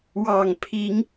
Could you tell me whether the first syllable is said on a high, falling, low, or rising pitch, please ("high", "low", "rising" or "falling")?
low